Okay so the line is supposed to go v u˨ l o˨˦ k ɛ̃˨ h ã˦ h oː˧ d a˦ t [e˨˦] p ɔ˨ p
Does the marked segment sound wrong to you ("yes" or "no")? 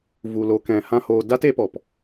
no